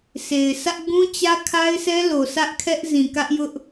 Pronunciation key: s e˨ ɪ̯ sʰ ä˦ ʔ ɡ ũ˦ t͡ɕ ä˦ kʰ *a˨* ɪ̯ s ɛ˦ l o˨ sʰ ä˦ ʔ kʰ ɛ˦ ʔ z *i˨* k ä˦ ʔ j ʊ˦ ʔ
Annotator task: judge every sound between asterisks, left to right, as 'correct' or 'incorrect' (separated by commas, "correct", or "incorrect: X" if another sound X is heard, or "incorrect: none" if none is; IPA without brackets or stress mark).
incorrect: a˦, incorrect: ĩ˨